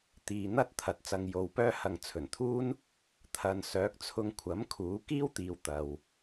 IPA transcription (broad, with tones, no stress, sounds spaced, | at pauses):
t̪ iː˨ n̪ ɐ˥ t̚ t̪ʰ ɐ˨ t̚ t͡s ɐ˧ ŋ j o˨˧ w p œː˥ h ɐ˨ ŋ t͡sʰ ɵ˨˩ n t̪ʰ uː˥ n | t̪ʰ ɐ˨ n s œː˨˥ k̚ t͡sʰ ʊ˧ ŋ kʷʰ ɐ˨˥ m kʰ uː˨˥ k iː˥ w t̪ iː˨ w t̪ ɐ˨ w